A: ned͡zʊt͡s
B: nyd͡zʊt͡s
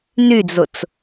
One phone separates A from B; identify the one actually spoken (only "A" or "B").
B